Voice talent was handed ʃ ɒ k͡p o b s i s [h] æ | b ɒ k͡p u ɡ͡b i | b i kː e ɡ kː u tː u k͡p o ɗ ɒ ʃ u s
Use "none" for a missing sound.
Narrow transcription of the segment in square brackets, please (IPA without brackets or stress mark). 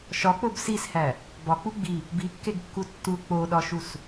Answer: h